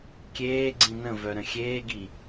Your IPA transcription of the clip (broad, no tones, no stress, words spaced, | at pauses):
kʲeː ɡ͡ǀĩnə̃vœ ɾə̃xʲeːɡi